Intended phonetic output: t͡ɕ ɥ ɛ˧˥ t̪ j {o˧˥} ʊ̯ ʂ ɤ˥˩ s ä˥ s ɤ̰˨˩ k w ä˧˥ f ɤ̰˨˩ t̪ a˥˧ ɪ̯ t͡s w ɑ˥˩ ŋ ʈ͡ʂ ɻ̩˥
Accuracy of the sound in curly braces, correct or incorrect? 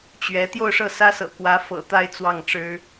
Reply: incorrect